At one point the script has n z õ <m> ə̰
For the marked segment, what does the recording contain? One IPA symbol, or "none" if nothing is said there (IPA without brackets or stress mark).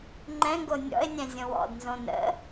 n